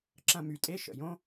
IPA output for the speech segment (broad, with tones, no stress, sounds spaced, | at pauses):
ǁ ɐ̃˧ m y˨ tʼ e˦ ʃ ə̰˨ j õ˦